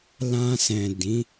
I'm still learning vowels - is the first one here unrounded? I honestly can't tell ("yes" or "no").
yes